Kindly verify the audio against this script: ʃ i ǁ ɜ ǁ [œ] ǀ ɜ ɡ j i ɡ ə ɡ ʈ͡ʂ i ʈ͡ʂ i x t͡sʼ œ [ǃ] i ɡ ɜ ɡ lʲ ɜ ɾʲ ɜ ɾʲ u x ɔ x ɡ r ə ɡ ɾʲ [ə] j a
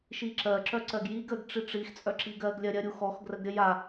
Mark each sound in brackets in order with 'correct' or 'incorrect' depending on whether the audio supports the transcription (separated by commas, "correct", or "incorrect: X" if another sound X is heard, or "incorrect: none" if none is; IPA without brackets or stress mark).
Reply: correct, incorrect: ǁ, correct